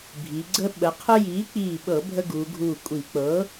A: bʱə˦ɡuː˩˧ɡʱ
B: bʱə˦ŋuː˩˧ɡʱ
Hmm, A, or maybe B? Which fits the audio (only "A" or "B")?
A